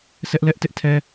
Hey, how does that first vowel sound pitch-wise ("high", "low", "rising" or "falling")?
high